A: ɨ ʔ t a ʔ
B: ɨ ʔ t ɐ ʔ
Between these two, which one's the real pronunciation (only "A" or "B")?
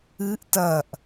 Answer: B